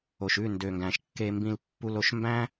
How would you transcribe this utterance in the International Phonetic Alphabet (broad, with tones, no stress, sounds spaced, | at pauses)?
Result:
o˨ ʃ ʉ˦˨ n d ø˨ ŋ ɡ æ̃˨ ʃ kː e˨ m b ĩ˨ l pː u˨ l o˨ ʃ m b æ̃˦